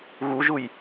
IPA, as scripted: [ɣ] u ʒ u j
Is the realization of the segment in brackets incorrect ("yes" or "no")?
no